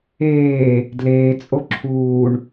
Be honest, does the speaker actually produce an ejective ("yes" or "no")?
yes